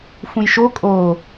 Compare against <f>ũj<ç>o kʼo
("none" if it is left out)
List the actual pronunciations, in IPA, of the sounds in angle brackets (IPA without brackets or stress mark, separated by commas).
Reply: f, ʃ